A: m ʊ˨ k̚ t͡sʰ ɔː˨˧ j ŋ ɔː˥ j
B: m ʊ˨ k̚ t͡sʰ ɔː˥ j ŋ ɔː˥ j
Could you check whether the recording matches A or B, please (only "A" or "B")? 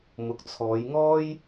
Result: A